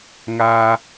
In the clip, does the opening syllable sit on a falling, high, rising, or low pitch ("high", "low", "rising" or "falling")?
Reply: low